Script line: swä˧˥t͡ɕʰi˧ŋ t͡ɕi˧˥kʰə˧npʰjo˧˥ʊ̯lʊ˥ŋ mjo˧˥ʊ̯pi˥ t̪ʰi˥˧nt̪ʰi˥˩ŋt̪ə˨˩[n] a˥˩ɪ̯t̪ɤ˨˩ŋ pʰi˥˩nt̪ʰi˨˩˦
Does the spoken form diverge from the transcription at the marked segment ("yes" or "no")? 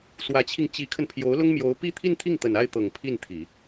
no